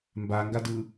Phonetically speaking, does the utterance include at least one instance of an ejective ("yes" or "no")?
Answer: no